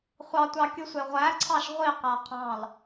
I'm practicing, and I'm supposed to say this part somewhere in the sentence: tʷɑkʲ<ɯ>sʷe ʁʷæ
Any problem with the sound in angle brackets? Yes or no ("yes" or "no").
no